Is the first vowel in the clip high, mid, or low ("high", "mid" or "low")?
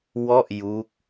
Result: mid